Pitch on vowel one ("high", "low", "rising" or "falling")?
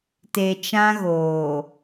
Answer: low